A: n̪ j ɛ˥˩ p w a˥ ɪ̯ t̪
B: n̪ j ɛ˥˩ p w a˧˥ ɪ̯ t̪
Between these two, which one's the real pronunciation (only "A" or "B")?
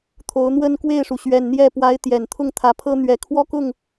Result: B